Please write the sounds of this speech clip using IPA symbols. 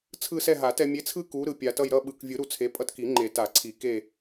t͡sʰ ɯ˦˨ s ɛ˦˨ ɦ a˨˩˦ t ɛ˨ mʲ e˨˥ t͡sʰ ɯ˦ k u˨˥ ɾ ɯ˨ pʲ a˨ t ʌ˦˨ j ɾ ʌ˦˨ ɓ ɯ˨ k vʲ ɯ˨˩˦ ɾ u˨ t͡sʰ e˨˥ pʼ ʌ˦ t k i˨˩˦ ŋ͡ǃ e˨˩˦ t a˨˩˦ ǀʰ i˨˩˦ k e˦˨

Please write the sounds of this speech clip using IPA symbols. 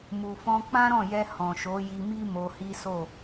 m u˨ f ɔ̃˧ k͡p ã˦ ɾ ɔ̃˦˨ j ɛ˧ h ɔ̃˨ ʃ o˨˦ j i˧ m i˦ m o˧ h i˦ s o˦˨

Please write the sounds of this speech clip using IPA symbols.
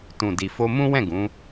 t ũ˨ d i˨ f o˧ m ũ˦ w ɛ̃˦˨ ɡ ũ˨˦

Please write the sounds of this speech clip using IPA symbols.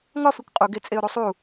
ŋ ɒ f i kʷ qʼ u ɡ e t͡sʼ e ʊ̯ ɾ u sˤ u

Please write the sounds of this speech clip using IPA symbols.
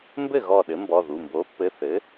m b ɘ˥˩ ɣ ɔ˧˩ ɗ ɘ˩˥ m b ɔ˩˧˩ ð u˩˧˩ m b o˩˥ pː ɘ˩˧˩ θ ɘ˩˥

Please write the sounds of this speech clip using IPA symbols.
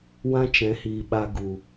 w ã˦ t͡ʃ ɛ̃˨˦ h iː˨ ɓ a˧ ɡ u˨

